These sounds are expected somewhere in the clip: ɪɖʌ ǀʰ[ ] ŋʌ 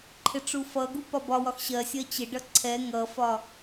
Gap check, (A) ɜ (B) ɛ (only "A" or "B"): B